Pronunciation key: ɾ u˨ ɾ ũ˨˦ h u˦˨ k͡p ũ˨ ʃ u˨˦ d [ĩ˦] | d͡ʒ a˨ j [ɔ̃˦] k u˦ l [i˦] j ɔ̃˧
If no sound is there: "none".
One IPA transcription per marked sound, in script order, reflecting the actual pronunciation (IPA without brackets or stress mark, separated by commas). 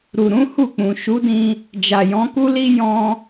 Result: ĩ˧, ɔ̃˨˦, i˦